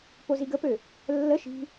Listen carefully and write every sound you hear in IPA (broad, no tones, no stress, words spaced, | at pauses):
poziɡəpø | lːə ʃi̤